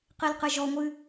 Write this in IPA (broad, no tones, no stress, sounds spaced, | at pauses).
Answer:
q i l q ɨ ʒ ɔ ŋʷ ɨ